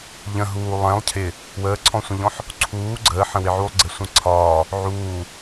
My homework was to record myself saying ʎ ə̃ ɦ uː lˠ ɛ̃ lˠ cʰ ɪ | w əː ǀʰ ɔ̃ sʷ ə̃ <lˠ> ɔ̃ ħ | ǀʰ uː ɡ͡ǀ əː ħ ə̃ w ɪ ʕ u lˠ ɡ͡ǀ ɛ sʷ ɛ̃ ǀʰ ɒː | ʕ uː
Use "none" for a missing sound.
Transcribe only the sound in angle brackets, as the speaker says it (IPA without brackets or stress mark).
ʎ